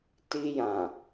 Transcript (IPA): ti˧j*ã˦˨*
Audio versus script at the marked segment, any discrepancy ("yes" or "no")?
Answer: yes